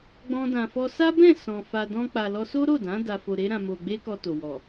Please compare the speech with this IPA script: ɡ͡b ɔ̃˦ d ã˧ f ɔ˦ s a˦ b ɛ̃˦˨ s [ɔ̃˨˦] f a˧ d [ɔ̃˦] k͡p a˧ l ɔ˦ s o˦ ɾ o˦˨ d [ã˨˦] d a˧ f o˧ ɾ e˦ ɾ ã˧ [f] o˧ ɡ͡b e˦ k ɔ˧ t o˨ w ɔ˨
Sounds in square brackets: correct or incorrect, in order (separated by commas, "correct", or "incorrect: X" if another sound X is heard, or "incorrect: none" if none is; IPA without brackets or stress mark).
incorrect: ɔ̃˨, correct, correct, incorrect: m